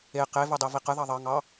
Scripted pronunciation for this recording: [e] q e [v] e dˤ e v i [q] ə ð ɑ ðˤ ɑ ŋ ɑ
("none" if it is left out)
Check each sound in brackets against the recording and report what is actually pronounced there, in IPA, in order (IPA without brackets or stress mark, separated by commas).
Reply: e, v, q